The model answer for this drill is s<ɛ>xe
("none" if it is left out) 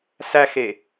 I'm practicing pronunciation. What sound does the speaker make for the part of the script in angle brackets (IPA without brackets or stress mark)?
æ